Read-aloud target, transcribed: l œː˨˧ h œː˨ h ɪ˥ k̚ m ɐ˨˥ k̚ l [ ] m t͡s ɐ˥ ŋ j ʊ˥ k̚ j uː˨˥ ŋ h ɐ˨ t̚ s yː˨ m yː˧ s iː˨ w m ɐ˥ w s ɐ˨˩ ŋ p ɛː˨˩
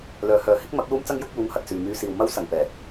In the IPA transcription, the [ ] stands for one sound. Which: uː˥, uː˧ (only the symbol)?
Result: uː˥